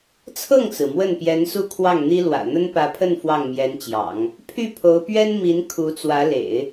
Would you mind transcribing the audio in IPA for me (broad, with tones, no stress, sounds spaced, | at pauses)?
t͡sʰ ɤ˥˩ ŋ t͡s ɹ̩˩ m w ə˥˩ n p j ɛ˧˥ n s u˥˧ kʰ w ɑ˥˩ ŋ n̪ i˥ l w ä̰˨˩ n̪ ə˥ n p ä˧˥ pʰ ə˥˧ n f w ɑ˥˩ ŋ m j ɛ˧˥ n t͡ɕ j ɑ̰˨˩˦ ŋ | pʰ y˥˩ pʰ o˧˥ ʊ̯ p ɥ ɛ˥ n m i˧˥ n kʰ u˧˥ t͡s w ä˧˥ l ḛ˨˩˦ ɪ̯